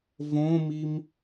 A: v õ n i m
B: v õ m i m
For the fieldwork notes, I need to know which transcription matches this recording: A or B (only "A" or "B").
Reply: B